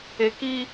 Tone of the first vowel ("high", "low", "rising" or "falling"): low